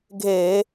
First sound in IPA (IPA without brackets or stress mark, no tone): ɡʱ